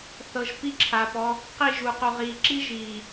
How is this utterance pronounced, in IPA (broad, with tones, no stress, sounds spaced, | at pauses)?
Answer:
θ ɤ˦ ʒ p i˦ ǁʰ aː˨ p ɔ˦ | q i˦˨ ʒ u˨ q u˨ ʁ iː˨ ǁ i˦ ʒ iː˨